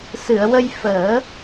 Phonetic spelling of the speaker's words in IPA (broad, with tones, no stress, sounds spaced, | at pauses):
s ɨ˨˩˨ ə̯ w ə˧ j f əː˨˩˦